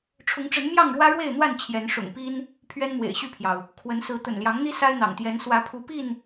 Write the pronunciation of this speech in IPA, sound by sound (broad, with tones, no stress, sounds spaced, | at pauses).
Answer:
ʈ͡ʂʰ ʊ˨˦ ŋ ʈ͡ʂ ə˨˦ n m j ɑ˥˨ ŋ ɻ w ä˦ ɻ w e˥˨ ɪ̯ n̪ w a˥˨ n t͡ɕʰ j ɛ˨˦ n ʂ ʊ̰˨˩ ŋ p i˦ n | pʰ ɥ ɛ˦ n m w ḛ˨˩ ɪ̯ ɕ y˥˨ pʰ j ɑ˩ ʊ̯ | kʰ w ə˨˦ n s ɹ̩˨˦ t̪ ə̰˨˩ n l j ɑ˨˦ ŋ n̪ i˦ s a˦ ɪ̯ n̪ ɑ̰˨˩ ŋ t̪ j ɛ˨˦ n s w ä˨˦ pʰ u˨˦ p i˥˨ n